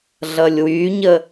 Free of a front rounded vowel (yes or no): no